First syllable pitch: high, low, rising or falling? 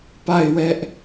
falling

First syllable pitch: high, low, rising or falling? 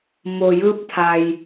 low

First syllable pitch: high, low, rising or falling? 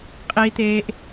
high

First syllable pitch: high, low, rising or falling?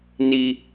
high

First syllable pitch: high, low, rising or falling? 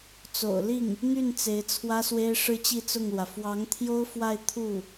low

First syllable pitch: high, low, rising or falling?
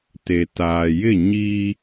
low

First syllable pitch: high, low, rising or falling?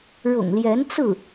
low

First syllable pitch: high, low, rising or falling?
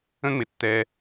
high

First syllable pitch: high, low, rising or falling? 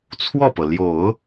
falling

